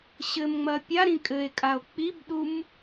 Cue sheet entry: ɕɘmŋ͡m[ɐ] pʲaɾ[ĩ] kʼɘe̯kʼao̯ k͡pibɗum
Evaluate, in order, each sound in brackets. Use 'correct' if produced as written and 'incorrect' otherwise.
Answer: correct, correct

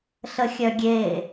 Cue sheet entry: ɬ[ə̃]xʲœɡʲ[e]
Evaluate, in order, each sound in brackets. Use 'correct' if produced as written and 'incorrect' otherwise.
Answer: incorrect: ə, correct

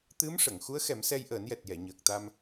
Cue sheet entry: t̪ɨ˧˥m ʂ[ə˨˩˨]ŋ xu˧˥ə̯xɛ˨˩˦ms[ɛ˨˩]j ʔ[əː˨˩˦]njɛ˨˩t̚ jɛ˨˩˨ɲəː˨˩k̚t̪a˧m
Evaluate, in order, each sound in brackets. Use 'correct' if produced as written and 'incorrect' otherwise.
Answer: correct, incorrect: ɛ˧, correct

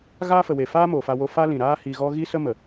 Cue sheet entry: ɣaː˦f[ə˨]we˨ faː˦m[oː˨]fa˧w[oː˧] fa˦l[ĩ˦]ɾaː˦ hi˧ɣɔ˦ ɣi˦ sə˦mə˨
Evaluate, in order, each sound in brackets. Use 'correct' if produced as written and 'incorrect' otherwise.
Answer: correct, correct, incorrect: o˧, incorrect: ĩ˨

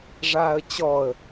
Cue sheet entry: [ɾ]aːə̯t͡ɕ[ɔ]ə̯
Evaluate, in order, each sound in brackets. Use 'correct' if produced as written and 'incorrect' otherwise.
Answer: incorrect: ʐ, correct

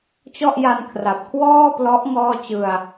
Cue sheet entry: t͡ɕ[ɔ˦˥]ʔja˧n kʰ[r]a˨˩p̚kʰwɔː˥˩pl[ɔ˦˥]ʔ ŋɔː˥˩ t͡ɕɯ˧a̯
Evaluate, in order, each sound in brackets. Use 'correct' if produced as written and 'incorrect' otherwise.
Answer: incorrect: ɔ˥˩, correct, correct

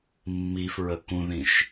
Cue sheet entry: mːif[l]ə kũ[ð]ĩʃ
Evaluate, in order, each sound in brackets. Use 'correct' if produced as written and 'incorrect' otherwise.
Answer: incorrect: ɹ, correct

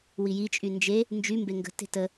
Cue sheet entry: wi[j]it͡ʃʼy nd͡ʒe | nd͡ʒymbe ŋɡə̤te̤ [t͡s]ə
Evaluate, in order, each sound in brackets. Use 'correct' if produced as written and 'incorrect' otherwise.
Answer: correct, incorrect: t

